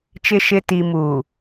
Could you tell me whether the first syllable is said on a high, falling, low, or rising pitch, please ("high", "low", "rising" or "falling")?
low